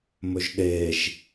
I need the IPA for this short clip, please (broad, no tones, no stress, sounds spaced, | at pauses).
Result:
m ɵ ʒ ɗ e ʒ